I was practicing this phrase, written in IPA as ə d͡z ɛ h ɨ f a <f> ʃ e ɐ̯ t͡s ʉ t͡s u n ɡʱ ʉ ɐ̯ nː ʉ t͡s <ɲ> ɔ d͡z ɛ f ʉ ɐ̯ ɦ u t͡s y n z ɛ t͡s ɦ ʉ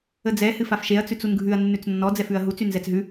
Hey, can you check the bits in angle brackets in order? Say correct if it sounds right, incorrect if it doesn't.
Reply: correct, incorrect: nː

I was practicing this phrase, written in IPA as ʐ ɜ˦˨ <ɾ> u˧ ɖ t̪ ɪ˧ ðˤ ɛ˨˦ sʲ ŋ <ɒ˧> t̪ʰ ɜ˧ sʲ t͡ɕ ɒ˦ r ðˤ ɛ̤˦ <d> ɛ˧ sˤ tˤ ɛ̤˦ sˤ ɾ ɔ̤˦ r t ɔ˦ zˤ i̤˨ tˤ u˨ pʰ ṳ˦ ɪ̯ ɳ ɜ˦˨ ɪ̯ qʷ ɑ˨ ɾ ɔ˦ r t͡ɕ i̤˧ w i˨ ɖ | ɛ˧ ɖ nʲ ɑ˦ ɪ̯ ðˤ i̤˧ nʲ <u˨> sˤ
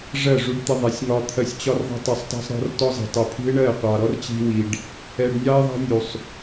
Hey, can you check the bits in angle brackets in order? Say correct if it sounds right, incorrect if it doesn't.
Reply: incorrect: ʐ, correct, incorrect: tˤ, correct

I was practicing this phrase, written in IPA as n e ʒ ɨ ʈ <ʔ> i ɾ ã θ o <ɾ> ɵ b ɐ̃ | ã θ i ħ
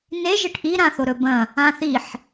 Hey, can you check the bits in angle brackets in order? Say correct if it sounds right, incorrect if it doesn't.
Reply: correct, correct

